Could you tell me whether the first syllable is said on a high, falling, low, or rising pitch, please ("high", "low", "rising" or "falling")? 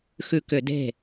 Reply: low